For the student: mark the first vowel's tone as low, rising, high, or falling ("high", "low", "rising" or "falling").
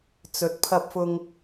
rising